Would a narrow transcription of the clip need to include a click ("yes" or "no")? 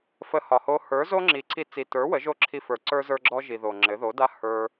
yes